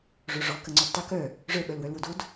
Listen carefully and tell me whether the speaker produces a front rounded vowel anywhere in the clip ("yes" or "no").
yes